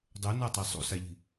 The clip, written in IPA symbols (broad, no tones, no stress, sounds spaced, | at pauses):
dˤ o n a tˤ ɛ sˤ ṵ s a ʎ i̤